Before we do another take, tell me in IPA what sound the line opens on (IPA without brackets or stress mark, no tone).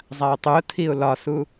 zˤ